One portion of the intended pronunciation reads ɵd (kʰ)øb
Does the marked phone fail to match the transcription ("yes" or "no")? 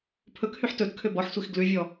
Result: no